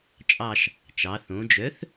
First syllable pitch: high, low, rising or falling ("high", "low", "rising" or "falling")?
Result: falling